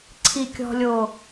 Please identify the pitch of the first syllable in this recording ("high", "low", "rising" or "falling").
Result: low